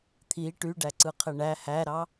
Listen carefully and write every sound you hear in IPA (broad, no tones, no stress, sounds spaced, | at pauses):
t̪ʰ i ʈ y ɖ æ ǀ ɯ qʰ e ɳ æ h æ ɾ ɑ